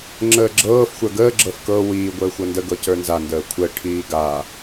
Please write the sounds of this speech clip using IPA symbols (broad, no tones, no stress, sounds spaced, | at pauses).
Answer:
ŋ͡ǁ əː ɡ͡ǁ ɤː f xʷ ə˞ ɡ əː ɡ͡ǁ ɤ f k ɤ w iː ɡʷ əː xʷ ɤ n d ə ɡ ɤ c ə˞ n z a n d əː kʷʰ ə ʈʰ iː ɡ a